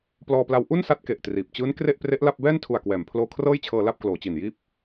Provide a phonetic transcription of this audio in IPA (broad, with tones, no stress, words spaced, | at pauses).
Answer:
plɔː˧pla˧w ʔu˥˩nsa˦˥t̚ ke˨˩ʔtriː˨˩p̚ t͡ɕɯː˦˥n kre˥˩ʔpre˦˥ʔla˥˩p̚ bɛː˥˩ntʰu˨˩a̯kwɛː˩˦m pʰloː˧kʰrɤː˥˩jt͡ɕʰɤː˧la˥˩p̚ kloː˩˦t͡ɕi˨˩njiː˥˩p̚